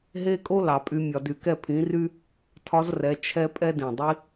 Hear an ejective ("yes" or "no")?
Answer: yes